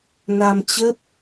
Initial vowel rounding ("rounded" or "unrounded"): unrounded